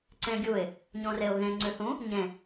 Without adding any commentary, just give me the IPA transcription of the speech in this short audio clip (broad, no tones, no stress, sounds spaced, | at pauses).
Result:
ǀ ẽ ɡʲ u ɪ̯ | ɲ õ r e ʊ̯ ɣ ẽ ŋ͡ǀ ʉ θ ũ | ɲ ẽ